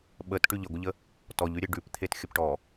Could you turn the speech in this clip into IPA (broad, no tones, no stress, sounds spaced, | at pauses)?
ɓ ə t ʈ ʉ ʎ ə ɡʷ ə ʎ ə | t ɔ ʎ ʉ ɾʲ e ɖ ʉ p t̪ʰ e t xʲ ə p ʈ ɔ